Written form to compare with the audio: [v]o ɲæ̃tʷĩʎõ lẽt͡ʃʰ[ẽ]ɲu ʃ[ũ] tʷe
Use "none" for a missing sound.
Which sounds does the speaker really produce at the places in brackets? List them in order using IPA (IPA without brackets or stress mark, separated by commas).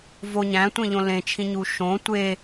v, ĩ, õ